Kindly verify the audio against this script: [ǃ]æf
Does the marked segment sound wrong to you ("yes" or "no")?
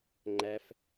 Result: yes